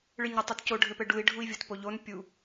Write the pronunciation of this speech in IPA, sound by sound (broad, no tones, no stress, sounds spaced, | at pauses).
ɭ ɨ ɲ ɘ tˤ o t c o ɖʱ ɘ p ɘ ɖ u i̯ ɖʱ u i̯ vʲ o t p o ʎ o n pʲ u